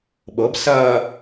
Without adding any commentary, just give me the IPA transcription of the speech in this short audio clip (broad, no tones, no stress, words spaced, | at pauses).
ɓɤbsɐː